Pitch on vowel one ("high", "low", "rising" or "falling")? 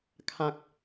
low